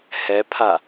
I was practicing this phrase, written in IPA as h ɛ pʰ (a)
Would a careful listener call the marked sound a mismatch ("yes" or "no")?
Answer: no